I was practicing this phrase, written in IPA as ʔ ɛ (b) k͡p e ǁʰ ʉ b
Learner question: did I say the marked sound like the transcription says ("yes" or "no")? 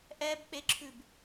yes